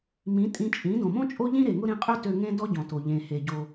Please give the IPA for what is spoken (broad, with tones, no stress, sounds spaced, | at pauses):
m ĩ˨˦ tʼ ĩ˧ t͡ʃʼ ĩ˨˦ d õ˨ m õ˦ t͡ʃʼ o˦ ʎ ĩ˦ ɾ e˨ ŋ ʊ˦ ɾ ĩ˧ qʼ ø˦ t ø˧ ŋ ẽ˦ d ɔ˦ ɟ ɔ̃˨ t o˨ ʎ ẽ˨ h e˨ ɟ o˧